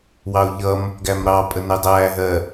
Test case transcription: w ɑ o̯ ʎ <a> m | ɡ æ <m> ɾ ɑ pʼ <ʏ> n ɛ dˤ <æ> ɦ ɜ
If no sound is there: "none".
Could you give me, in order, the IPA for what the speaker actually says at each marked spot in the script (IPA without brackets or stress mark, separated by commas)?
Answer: ʌ, m, ə, æː